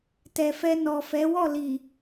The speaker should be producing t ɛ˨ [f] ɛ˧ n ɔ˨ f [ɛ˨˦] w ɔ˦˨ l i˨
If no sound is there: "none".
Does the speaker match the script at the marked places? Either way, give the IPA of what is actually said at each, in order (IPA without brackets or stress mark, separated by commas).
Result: f, ɛ˨˦